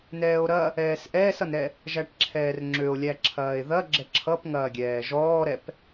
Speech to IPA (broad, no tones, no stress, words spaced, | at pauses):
nɛːo̯ɾɐ | ɛːsʔɛːsʌnɾɛ | ʒæʈǁʰɛːrŋ͡ǁøo̯lʲæ ǁʰɐːe̯ðɐ ɡ͡ǁɛǁʰʌpŋɐːɡʲɛː ʒɔːɾɛp